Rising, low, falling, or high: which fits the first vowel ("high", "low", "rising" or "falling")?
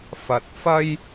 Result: low